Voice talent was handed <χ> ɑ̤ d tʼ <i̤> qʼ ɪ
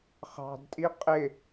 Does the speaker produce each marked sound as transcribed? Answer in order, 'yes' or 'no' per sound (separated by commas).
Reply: yes, no